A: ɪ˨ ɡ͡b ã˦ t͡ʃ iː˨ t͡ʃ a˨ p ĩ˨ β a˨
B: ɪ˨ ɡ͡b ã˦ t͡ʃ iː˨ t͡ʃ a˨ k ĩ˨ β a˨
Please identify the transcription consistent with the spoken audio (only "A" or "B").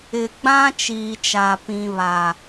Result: A